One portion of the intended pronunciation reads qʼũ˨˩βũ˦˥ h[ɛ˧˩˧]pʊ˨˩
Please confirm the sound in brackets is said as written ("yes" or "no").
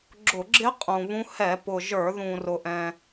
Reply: yes